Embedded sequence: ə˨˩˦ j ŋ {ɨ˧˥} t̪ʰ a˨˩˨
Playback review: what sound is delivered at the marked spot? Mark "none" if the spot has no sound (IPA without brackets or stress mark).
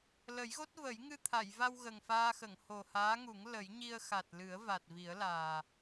ɨ˧